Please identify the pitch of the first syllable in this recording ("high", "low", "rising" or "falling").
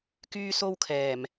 high